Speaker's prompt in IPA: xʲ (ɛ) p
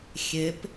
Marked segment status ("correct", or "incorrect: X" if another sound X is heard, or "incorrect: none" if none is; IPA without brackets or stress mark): incorrect: e